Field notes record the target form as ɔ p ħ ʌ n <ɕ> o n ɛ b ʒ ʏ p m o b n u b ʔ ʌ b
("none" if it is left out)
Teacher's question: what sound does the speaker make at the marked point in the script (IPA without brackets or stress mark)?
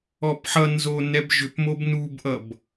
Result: z